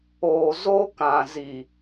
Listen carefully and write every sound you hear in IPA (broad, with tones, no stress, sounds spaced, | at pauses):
oː˨ z o˦ k ã˨ z i˨